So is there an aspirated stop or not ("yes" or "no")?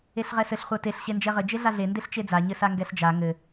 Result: no